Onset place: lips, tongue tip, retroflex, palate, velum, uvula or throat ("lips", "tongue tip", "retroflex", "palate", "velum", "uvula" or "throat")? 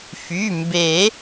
lips